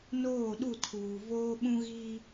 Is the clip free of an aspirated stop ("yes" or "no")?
no